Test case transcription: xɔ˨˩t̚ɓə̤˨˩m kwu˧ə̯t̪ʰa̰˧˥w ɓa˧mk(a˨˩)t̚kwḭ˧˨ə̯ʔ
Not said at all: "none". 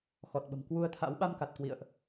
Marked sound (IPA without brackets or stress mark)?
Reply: a˨˩